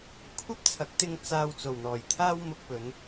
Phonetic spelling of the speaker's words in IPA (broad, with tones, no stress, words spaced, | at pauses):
kʷʰɐ˥p̚t͡sʰɐ˨˥k̚t̪ɪ˧ŋ t͡saː˨w t͡so˨˩wn̪ɔː˨˩jt̪ʰaː˥w mʊ˧k̚pɵ˨˧n